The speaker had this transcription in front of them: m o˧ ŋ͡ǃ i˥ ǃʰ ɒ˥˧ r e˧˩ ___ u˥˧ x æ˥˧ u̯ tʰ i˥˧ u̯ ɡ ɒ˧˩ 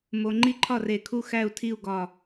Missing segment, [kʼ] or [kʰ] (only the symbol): kʰ